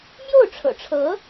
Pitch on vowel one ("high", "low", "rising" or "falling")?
falling